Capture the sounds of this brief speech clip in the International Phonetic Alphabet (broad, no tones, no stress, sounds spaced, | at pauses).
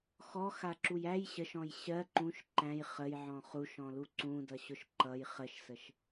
x ɔ x a ǁ u j æ j ɕ ə ʃ ɔ̃ j ɕ ɜ ǃ ũ ʃ ǃ æ̃ j χ ə j ʕ ɔ̃ χ u ʃ ɔ̃ l u ǀ ũ d ʌ ɕ ʊ ʃ ǃ ʌ j χ ə ʃ s ə ʃ